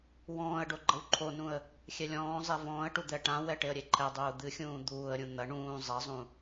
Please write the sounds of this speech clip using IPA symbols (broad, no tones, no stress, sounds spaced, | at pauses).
w ɔ̃ː ə̯ ɖ o ɡ͡ǃ ɐ w ǃʰ o n ũ ə̯ | xʲ ɛ lʲ ɔ̃ː zˤ e v ɔ̃ː ə̯ ʈ u d̪ ɛ ʈ ã w ɛ ʈ e ə̯ ɾʲ e ǃʰ ɛ dˤ uː d̪ ɨ xʲ ũː d̪ uː ə̯ ɾʲ ũ n̪ ɐ ɳ ũː zˤ ɛ zˤ ũ